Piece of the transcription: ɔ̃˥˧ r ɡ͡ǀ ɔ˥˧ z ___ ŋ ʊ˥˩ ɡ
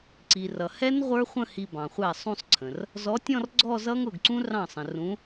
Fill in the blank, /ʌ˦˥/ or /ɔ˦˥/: ʌ˦˥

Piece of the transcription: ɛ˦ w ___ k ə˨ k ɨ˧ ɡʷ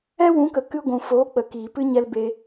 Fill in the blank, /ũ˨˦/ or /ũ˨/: ũ˨˦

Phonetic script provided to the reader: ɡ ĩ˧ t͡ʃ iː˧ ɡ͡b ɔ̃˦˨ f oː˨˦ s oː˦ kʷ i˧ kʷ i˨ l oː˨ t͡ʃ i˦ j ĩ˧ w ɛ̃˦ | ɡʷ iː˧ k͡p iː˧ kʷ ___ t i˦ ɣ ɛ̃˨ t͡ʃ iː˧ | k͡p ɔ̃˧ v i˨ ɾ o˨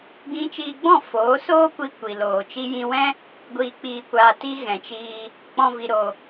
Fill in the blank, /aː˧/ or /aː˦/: aː˧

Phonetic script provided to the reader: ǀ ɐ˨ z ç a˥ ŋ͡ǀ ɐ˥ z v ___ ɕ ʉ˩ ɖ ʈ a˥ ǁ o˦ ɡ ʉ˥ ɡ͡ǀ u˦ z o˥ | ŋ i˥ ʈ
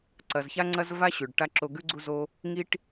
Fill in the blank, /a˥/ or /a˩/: a˥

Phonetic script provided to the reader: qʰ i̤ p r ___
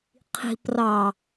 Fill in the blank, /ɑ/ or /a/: ɑ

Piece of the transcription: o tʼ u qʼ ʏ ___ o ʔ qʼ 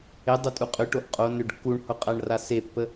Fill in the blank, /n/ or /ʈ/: ʈ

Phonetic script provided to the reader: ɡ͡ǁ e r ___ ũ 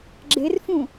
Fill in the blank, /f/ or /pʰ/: f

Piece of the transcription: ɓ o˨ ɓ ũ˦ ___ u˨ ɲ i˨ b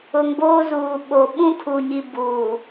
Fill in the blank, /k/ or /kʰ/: kʰ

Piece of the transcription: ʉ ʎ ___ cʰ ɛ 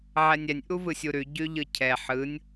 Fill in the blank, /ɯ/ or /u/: ɯ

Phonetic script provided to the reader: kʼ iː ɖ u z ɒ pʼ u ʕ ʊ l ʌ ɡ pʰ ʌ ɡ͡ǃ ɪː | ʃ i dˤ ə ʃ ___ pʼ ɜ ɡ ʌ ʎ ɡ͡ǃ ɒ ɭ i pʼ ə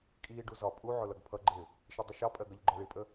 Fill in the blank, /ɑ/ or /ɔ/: ɑ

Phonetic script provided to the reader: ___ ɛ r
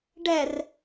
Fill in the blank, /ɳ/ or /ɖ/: ɖ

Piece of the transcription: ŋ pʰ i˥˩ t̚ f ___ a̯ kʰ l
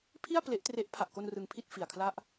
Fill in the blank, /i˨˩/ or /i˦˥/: i˨˩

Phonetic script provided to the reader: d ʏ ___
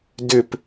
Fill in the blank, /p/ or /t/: p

